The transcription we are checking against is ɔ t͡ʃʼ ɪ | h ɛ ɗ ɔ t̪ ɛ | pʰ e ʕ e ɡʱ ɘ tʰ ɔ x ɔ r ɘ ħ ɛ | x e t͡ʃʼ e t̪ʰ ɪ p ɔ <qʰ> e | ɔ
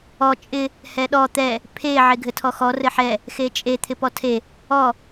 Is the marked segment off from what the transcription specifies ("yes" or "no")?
yes